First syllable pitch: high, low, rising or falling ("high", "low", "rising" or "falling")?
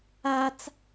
high